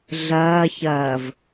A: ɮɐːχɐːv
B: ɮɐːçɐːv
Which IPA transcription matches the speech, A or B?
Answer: B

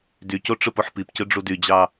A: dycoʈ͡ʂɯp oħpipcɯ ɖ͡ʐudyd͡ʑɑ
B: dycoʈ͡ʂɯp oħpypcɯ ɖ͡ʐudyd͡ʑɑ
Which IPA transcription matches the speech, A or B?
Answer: A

